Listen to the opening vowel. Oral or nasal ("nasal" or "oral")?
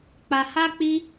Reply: oral